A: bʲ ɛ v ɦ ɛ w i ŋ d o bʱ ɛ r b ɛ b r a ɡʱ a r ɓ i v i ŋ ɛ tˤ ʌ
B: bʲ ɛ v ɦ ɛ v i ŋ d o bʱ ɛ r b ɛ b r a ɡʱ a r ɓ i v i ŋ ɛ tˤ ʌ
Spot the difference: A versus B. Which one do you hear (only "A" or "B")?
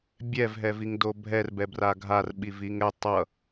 B